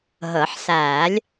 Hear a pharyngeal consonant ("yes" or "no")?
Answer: yes